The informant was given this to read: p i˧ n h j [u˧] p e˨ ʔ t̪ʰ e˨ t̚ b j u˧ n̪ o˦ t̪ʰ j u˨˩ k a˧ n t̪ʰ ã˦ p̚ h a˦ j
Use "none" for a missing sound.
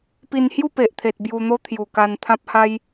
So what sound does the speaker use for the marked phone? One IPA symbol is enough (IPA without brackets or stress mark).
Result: u˥˧